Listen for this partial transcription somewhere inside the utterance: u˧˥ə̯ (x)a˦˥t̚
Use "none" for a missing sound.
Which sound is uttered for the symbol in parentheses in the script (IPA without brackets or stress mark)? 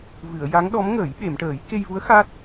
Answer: x